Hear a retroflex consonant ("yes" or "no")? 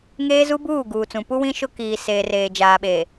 no